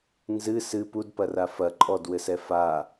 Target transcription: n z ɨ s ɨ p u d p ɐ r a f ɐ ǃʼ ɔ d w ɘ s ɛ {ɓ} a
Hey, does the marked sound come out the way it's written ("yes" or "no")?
no